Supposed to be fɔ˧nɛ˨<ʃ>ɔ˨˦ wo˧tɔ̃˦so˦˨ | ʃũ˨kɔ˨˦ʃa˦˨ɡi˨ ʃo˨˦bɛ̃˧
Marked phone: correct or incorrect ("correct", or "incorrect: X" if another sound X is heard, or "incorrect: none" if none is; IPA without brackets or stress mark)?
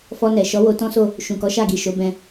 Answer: correct